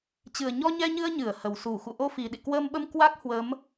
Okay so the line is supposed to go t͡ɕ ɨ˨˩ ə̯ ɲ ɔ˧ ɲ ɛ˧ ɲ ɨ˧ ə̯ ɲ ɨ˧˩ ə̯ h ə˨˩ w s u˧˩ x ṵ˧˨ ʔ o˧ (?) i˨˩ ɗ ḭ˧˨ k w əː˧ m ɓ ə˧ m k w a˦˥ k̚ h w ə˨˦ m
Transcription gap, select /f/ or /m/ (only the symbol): f